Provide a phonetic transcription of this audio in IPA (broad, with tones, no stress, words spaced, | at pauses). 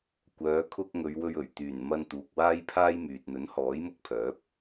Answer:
kʷœː˨˧ kʰʊ˧k̚ ŋɵ˨˧ɥwɵ˧ɥ ɵ˨˩ɥ t̪yː˨˩nmɐ˧n t̪uː˨k̚waː˥jpʰaː˥jmyː˨t̚ n̪ɵ˨˥nhɔː˨˥jmʊ˧k̚pʰœː˨˥p̚